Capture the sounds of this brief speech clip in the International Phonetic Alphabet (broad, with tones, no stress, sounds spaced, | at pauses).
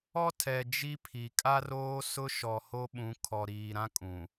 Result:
ɔ˦ tʰ ɛ˨ d͡ʒ i˦ pʰ i˨ kʼ a˦ r oː˦ s ʊ˦ ʃ ɔ˨ h o˦ ɓ ũ˨˦ kʰ ɔ˨ ɾ iː˨ ɾ ã˦ kʼ ũ˨